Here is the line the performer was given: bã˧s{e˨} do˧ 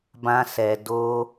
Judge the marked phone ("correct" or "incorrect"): incorrect